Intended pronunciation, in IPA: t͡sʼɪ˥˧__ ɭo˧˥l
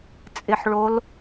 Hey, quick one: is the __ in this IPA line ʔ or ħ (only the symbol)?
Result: ħ